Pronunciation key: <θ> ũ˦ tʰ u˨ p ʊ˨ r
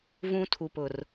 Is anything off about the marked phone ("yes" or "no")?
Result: yes